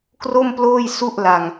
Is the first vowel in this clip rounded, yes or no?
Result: yes